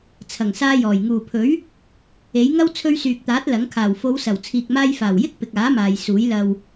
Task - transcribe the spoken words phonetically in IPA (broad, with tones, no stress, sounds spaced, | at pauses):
t͡sʰ ɐ˨˩ ŋ s aː˧ j ɔː˨˩ j ŋ uː˨˩ pʰ ɵ˨˥ ɥ | e˨˥ j ŋ ɐ˥ w t͡sʰ ɵ˧ ɥ s yː˨ k̚ t̪ aː˨˥ t̚ l ɐ˨˥ ŋ kʰ aː˨˩ w f o˨˧ w s ɐ˨˩ w t͡sʰ iː˨ k̚ m aː˧ j f aː˨˩ w j ɪ˥ k̚ p ɪ˨ k̚ aː˨˥ m aː˨ j s uː˨˥ j l ɐ˨ w